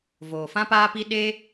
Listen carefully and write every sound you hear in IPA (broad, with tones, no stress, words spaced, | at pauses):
voː˨fã˦paː˦pi˦ ɗe˦